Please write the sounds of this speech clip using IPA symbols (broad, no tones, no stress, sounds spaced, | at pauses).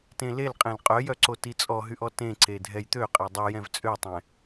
t ẽ l e l qʼ ẽ l qʼ œ j œ ǀ o t i t͡sʼ ɔ ɦ y ʔ ɔ t ẽ ǀ e dʱ ɛ j t̪ ø qʼ e dˤ y j ɛ̃ v t͡sʼ ø tˤ ɛ̃